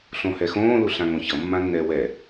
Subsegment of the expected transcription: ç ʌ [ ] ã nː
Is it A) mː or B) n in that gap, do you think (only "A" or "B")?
A